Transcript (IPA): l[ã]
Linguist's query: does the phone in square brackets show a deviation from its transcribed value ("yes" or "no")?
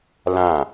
no